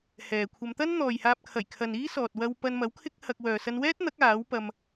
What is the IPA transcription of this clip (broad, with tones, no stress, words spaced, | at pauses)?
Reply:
hɛː˨kʷʰɐ˧m t̪ɐ˥nn̪ɔː˨jhaː˧p̚kʰɐ˨˩j kʰɐ˨niː˥sɔː˨t̚ wɐ˧wpɐ˧nmɐ˨˥w kʰɪ˥k̚hɐ˧k̚ wœː˨sɐ˧nwɛː˥t̚n̪ɐ˨˥k̚ aː˨˥wpɐ˧m